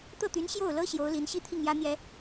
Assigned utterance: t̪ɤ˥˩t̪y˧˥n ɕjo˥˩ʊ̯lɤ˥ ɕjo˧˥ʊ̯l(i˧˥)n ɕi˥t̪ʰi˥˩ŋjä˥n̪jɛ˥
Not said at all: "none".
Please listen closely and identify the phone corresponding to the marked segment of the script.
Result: i˧˥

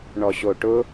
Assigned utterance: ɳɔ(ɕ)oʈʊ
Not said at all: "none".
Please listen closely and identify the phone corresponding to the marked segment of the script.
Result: ɕ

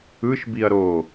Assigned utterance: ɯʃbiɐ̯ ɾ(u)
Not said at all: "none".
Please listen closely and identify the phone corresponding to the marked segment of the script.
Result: o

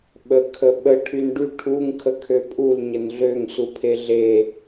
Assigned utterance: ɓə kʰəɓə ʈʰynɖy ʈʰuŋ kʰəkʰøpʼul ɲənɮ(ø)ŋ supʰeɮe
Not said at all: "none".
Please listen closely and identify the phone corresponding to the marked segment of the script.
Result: ø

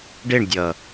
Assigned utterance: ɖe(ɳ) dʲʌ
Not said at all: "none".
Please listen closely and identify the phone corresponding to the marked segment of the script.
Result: ɳ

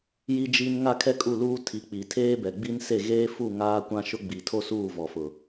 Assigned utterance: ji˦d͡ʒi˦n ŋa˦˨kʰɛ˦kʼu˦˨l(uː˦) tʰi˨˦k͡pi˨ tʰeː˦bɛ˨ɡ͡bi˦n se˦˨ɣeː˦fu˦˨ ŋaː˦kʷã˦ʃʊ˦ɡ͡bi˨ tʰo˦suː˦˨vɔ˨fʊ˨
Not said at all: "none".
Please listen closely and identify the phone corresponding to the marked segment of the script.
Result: uː˦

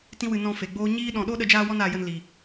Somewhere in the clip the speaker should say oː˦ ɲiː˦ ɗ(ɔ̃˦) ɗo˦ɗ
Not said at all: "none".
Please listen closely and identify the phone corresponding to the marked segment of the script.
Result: ɔ̃˧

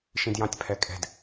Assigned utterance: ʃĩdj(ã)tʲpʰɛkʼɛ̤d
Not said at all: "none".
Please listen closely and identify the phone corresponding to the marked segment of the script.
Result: ɑ̃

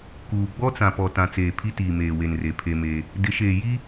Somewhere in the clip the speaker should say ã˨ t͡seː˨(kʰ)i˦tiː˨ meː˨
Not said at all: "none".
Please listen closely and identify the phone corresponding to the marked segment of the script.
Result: pʰ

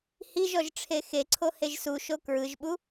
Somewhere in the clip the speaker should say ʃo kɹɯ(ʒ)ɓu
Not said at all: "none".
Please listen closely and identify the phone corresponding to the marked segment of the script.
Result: ʒ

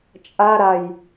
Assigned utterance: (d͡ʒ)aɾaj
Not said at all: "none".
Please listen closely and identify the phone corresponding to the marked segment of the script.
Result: t͡ʃʼ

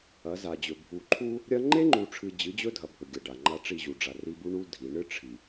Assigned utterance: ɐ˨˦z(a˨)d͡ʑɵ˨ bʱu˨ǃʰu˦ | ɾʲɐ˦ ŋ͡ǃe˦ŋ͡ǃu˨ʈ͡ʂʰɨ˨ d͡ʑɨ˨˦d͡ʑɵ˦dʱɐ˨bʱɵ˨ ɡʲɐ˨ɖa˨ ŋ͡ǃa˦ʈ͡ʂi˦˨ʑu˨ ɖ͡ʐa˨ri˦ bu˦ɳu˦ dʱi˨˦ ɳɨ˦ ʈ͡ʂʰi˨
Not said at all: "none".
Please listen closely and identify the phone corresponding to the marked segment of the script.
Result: a˨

